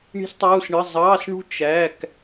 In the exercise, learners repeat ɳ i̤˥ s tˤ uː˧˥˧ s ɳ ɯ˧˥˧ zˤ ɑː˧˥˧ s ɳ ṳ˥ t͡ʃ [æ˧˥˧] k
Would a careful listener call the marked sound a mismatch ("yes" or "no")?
no